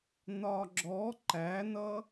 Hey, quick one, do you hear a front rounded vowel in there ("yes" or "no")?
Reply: no